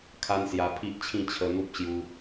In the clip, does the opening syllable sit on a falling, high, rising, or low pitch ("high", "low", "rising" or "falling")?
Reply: high